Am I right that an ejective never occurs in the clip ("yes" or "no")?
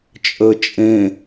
no